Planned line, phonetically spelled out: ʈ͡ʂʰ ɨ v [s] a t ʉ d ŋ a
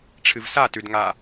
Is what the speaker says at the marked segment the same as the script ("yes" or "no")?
yes